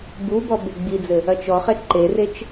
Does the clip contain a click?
yes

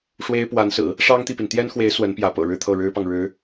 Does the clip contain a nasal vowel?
no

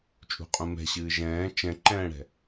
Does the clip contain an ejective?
yes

